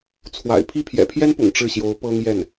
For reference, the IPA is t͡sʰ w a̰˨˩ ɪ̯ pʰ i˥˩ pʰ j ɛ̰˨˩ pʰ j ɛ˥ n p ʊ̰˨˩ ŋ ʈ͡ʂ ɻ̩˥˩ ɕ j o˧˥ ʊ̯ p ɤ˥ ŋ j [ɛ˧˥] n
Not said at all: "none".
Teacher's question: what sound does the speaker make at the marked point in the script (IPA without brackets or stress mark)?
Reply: ɛ˥˩